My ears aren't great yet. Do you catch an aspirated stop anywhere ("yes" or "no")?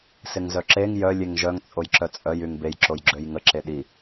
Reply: no